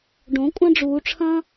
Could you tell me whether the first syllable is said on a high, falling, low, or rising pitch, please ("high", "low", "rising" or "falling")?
rising